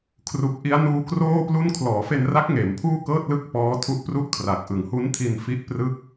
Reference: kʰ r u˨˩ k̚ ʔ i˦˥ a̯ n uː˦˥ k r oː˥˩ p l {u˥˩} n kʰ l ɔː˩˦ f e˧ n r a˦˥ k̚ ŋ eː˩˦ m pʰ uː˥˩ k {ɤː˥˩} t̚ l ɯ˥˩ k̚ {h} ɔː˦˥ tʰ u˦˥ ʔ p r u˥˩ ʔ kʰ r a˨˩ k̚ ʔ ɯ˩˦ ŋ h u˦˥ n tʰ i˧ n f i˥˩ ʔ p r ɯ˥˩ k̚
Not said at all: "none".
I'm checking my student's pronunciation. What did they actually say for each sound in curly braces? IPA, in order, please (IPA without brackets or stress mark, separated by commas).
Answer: u˥˩, ɤː˥˩, p